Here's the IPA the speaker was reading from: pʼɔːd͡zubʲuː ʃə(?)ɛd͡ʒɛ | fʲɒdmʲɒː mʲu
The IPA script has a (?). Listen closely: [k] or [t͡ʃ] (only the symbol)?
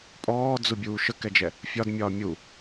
k